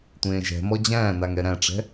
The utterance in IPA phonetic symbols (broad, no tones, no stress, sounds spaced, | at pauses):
tʷ ẽː ʒ ɛ̤ m ɔ d͡ʑ æ̃ː n a ŋ ɛ ɾ æ̃ ʈ͡ʂ ɛ̤